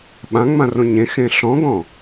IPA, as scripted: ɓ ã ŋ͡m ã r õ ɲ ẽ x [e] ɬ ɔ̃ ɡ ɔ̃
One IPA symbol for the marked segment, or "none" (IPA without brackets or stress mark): ẽ